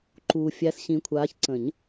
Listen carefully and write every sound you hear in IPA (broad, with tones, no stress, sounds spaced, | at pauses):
ǃ uː˨ fʲ æ˨˦ s ɕ ĩ˨˦ kʷʰ aː˨˦ ç ǀ ə̃˨˩˦ ɲ